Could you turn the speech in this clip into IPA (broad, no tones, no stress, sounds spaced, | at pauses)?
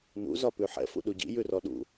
n ṵ z ɒ p ʉ ħ ɛ̰ f ṵ ɗ u ɟ ḭ j ʉ r ɔ ɗ ṵ